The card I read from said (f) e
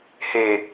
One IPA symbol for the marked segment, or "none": h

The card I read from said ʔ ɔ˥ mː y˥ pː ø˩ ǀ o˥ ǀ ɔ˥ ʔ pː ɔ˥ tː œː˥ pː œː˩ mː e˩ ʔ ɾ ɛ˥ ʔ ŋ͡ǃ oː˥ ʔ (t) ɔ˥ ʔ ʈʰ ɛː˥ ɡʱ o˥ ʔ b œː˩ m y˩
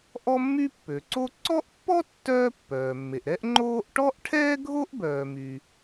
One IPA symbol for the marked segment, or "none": ʈ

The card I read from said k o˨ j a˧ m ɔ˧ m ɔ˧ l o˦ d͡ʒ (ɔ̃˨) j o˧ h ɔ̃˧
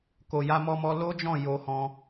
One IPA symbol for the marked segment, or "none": ɔ̃˦˨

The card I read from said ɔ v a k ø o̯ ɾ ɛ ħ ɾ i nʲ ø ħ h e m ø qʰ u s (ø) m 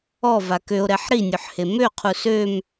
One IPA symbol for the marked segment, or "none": ø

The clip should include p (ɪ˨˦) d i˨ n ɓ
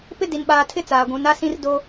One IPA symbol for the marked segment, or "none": ɪ˦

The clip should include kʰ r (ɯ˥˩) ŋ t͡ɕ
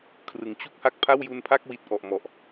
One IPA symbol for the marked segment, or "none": ɯ˩˦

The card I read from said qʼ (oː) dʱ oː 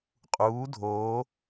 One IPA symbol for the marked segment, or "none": uː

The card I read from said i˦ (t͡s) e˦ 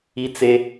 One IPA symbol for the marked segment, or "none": t͡s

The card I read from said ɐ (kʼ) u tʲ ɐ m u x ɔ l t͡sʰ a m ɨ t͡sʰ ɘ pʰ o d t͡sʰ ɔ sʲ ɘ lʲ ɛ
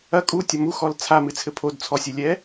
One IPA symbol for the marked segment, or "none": kʼ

